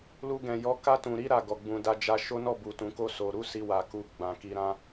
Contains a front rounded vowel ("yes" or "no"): no